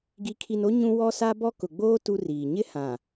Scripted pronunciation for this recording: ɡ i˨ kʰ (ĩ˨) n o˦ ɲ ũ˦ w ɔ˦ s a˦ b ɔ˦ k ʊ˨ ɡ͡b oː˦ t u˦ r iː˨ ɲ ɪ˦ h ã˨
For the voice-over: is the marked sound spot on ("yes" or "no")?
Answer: no